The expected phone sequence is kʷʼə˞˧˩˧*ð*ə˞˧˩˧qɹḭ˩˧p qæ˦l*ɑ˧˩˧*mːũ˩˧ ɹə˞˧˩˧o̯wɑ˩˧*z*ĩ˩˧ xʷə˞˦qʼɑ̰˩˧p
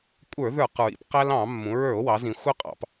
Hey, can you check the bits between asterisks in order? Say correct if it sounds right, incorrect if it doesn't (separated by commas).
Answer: correct, incorrect, correct